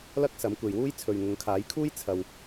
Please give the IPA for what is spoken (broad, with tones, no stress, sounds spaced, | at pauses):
l ɐ˥ k̚ s ɐ˨˥ m kʷ e˧ j w uː˥ j t͡sʰ ɵ˨ ɥ ŋ ʊ˨˧ ŋ kʰ aː˨˥ j kʰ uː˥ j t͡sʰ ɐ˧ w